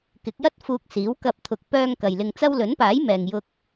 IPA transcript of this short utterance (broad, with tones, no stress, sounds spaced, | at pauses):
k ɪ˨˥ k̚ j ɐ˥ t̚ f uː˧ k̚ s iː˨˥ w k ɐ˧ p̚ t̪ʰ ʊ˨˥ k̚ p œː˧ ŋ k ɐ˨ j l ɪ˧ ŋ t͡s ɐ˥ w l ɵ˨˥ n p aː˨˥ j m ɛː˨ ŋ j ʊ˧ k̚